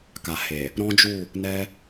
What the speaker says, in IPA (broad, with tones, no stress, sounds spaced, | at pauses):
k a˨ h e˨ | ɾ ɔ̃˦ d͡ʒ u˦˨ | n ɛ˦